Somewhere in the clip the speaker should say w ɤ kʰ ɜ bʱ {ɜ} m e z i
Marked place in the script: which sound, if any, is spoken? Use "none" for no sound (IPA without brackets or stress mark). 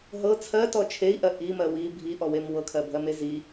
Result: ɜ